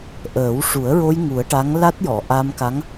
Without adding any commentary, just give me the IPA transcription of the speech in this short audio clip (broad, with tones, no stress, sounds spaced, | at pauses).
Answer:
ʔ əː˨˩˦ w ʂ u˨˩˦ ə̯ ɹ o˧ j ŋ u˨˩˦ ə̯ ʈ a˧˥ ŋ l a˦˥ t̚ j ɔ˨˩˨ ʔ a˧ m k a˧˥ ŋ